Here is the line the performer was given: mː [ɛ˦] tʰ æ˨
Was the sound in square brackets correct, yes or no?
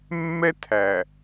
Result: yes